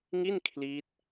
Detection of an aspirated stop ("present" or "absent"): present